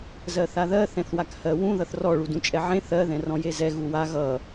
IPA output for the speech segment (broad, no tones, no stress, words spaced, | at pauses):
zɜθaðɜ θɛ̃θwakhɜwũ ðʌθrɔ ɭudũt͡ʃʼɛʕẽ θɜ ðɛ̃rɔ̃jezɛ ɣuwa ɣʌ